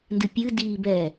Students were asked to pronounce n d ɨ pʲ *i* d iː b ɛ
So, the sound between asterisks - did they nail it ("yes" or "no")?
no